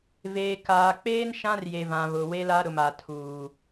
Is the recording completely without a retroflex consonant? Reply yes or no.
yes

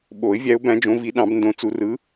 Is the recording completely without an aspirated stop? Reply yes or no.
yes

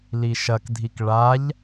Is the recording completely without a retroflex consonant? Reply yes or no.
no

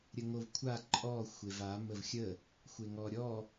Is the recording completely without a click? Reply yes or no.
no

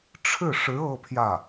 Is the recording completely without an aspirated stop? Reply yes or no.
no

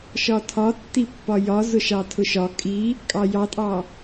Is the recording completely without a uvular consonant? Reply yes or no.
yes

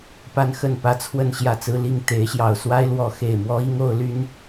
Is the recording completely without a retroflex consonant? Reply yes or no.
yes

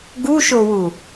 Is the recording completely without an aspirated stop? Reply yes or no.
yes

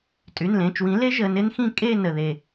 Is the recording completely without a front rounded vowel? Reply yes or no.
no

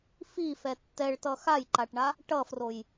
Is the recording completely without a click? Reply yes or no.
no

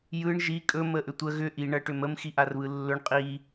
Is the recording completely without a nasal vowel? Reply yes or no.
yes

